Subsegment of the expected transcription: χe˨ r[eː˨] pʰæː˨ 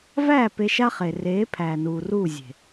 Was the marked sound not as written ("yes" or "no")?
yes